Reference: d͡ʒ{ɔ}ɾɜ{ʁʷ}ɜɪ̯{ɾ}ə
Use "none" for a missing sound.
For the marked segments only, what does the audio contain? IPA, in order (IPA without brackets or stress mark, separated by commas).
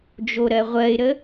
o, ʁʷ, ɾ